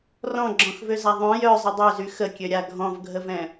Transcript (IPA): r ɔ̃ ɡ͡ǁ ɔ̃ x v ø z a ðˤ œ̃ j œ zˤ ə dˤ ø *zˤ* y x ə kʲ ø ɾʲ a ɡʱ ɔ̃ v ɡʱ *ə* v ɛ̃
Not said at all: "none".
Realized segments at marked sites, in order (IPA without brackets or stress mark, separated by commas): z, ə